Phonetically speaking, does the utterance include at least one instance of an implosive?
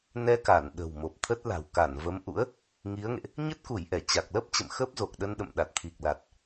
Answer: yes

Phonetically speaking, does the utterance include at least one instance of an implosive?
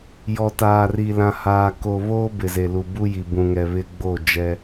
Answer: no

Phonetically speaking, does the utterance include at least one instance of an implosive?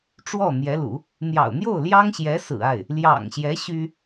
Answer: no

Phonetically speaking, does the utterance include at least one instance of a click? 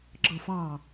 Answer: yes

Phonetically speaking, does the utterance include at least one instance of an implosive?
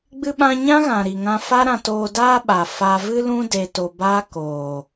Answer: yes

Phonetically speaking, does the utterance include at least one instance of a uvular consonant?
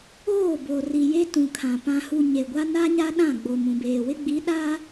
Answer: no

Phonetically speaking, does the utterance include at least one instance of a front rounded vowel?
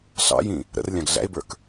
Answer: no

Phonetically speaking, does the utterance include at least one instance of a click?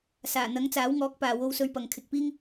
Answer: no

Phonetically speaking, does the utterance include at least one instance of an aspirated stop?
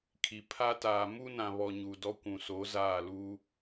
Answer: yes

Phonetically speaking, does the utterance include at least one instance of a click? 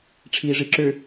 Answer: yes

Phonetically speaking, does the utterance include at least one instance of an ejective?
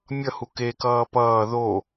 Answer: no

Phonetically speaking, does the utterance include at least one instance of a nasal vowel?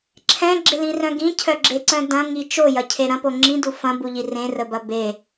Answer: yes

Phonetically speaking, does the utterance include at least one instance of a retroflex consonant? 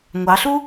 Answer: no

